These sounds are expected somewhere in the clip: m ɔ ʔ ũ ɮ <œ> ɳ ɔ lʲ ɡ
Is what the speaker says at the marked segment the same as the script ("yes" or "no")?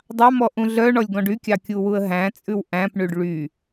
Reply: yes